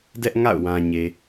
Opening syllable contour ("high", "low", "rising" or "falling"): high